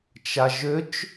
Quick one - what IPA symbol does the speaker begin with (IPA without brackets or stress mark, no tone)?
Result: t͡ʃ